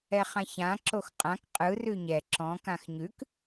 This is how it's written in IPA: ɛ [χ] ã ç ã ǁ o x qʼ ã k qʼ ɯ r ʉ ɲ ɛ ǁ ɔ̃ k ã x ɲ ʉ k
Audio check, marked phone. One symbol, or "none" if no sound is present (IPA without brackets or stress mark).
χ